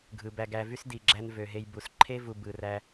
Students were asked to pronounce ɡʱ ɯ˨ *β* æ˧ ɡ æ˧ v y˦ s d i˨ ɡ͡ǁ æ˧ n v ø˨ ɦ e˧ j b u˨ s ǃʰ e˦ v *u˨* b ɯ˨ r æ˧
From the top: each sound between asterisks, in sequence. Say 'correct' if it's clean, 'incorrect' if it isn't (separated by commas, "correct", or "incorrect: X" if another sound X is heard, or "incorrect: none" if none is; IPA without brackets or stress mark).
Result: incorrect: b, correct